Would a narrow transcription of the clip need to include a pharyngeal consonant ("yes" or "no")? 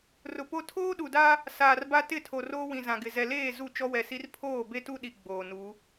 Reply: no